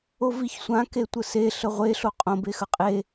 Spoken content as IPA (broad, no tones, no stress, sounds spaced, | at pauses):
o v i ç sʷ ã k e tʷ ə s e ɬ ə ʁʷ e ɬ o qʼ õ b e x ə qʼ e